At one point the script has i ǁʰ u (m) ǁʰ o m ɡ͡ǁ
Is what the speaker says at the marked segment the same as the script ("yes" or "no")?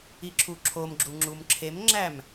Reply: no